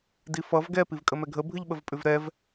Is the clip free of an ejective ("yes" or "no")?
no